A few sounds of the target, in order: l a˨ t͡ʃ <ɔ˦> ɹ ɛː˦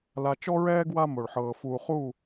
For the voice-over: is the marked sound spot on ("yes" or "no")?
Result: yes